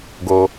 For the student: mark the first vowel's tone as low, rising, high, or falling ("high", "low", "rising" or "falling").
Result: low